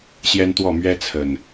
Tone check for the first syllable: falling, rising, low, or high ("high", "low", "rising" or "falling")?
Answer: high